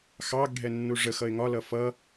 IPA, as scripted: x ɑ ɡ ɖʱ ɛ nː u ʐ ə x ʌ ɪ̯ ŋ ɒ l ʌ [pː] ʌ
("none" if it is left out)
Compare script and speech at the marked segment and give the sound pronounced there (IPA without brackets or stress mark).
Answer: f